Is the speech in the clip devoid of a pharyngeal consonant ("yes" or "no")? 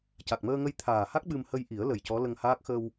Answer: yes